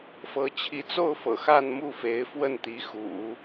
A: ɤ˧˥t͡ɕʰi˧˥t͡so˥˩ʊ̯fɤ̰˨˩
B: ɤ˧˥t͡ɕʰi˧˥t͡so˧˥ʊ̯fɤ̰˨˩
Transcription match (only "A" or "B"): A